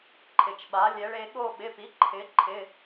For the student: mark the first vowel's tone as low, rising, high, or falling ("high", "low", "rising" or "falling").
low